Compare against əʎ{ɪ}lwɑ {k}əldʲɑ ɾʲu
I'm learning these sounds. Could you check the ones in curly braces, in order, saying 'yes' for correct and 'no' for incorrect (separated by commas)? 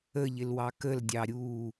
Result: yes, yes